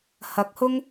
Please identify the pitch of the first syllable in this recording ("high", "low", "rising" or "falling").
rising